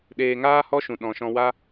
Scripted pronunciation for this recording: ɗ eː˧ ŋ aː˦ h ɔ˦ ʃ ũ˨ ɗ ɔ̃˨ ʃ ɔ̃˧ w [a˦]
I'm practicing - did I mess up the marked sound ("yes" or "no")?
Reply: no